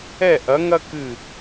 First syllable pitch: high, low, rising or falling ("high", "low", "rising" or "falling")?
falling